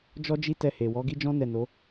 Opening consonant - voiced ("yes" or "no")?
yes